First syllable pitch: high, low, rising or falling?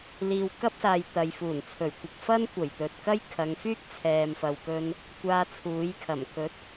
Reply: low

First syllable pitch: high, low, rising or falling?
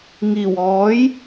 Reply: low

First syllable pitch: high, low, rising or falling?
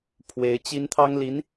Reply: rising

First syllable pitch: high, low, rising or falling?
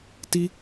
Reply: high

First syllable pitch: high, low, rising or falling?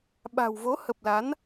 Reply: low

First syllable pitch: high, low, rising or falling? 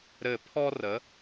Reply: falling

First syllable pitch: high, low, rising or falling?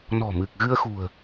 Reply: low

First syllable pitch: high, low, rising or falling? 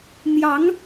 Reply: rising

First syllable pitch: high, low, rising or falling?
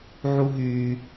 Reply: high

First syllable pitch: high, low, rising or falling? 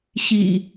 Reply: low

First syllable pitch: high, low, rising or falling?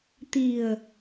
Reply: low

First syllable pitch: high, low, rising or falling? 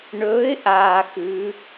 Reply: rising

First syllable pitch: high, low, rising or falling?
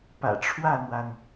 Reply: low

